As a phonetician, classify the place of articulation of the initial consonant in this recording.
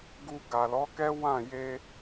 velar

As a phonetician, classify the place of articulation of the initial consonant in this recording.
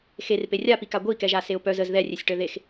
velar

